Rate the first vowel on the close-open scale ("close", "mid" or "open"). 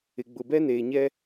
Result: close